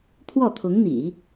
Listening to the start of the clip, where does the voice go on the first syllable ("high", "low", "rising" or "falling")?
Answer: falling